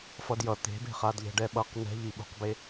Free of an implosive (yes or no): no